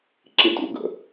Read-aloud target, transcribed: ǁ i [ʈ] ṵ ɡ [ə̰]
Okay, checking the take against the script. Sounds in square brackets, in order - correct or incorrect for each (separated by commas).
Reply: incorrect, correct